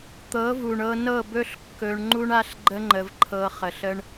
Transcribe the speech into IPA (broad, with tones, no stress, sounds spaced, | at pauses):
t̪ ɤ˨˦ v u˨ ɳ ɤ˧ n ɤ˦˨ b ɵ˦ ɬ kː ɵ˧ ɳ ŋ͡ǃ u˦ ɳ a˦ ɬ ɡ͡ǃ ə˦ ŋ͡ǃ ə˧ v ǃʰ ɤ˧ χ ə˨ ɬ ə˧ ɳ